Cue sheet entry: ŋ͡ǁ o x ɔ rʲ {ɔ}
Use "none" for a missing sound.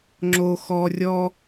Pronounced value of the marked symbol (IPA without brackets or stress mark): ɔ